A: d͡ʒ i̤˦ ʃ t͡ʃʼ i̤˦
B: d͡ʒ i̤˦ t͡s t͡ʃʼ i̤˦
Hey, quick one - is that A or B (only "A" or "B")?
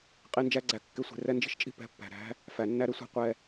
A